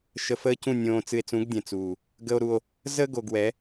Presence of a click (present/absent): absent